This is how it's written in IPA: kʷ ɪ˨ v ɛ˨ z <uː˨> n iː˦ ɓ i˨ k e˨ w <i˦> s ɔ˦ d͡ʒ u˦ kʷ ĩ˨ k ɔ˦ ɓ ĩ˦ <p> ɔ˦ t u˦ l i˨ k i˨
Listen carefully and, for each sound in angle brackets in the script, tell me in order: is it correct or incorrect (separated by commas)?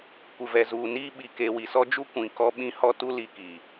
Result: correct, incorrect, incorrect